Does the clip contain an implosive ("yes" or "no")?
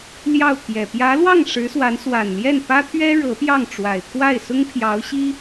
no